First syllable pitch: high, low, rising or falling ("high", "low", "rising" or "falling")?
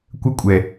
high